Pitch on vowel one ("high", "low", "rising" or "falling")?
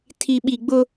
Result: low